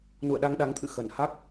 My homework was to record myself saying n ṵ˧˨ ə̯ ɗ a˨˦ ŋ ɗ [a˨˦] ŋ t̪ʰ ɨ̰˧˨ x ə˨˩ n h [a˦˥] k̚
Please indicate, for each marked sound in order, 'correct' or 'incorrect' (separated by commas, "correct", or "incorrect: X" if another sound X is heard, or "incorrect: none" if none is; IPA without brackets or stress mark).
correct, correct